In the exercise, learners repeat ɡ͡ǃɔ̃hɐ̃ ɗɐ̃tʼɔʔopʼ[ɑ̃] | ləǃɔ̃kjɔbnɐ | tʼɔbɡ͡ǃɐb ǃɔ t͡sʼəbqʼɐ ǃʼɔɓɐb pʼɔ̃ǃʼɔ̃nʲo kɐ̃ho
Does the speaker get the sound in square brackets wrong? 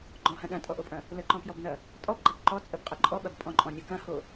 yes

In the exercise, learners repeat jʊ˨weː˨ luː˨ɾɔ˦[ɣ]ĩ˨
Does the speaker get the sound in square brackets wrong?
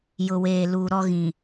no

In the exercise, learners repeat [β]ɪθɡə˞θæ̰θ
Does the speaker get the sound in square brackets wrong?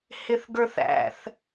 yes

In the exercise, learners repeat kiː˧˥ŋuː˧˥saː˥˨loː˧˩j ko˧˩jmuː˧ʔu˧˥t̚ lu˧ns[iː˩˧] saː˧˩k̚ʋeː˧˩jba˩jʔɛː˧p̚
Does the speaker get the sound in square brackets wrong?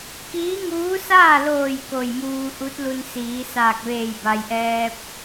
no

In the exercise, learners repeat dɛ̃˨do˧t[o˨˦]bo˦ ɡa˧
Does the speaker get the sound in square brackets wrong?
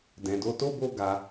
yes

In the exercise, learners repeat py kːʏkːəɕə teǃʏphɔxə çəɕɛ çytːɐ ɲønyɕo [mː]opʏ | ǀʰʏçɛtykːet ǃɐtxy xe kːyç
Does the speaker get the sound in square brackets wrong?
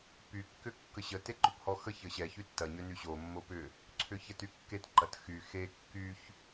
no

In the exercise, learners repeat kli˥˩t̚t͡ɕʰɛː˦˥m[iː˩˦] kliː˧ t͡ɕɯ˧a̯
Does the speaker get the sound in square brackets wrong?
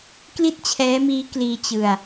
yes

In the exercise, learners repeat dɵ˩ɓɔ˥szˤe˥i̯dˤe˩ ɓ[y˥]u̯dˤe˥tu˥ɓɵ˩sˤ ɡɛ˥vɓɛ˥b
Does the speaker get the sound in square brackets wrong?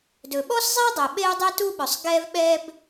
yes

